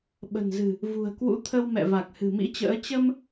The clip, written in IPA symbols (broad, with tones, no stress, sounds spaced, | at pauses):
ɓ ə̤˨˩ n z ɨ̤˨˩ | v ṳ˨˩ ə̯ k w ṵ˧˥ t̪ʰ ə˧ w m ɛ̰˧˨ v a˨˩ k̚ h ɨ̤˨˩ m ḭ˧˥ t͡ɕ ə̰ː˧˥ t͡ɕ ə˧ m